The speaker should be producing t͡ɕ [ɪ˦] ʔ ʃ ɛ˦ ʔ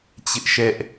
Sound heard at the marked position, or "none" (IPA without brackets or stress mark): ɪ˦